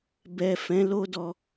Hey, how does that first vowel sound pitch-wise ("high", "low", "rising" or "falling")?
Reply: low